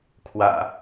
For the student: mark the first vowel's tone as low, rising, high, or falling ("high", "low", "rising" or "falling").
low